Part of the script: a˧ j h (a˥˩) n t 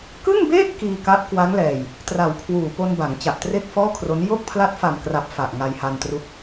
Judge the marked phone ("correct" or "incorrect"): incorrect